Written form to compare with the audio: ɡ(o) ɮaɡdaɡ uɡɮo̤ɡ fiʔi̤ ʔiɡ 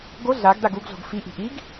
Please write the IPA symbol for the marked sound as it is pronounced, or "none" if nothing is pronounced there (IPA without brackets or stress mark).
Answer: o